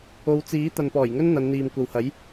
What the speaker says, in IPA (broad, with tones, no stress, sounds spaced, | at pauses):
o˨˧ w t͡s iː˨˥ t̪ ɐ˨ n p ɔː˨˩ j ŋ ɵ˥ n n̪ ɐ˨˧ n n̪ iː˨ m kʷ ɐ˨ w h ɐ˨˥ j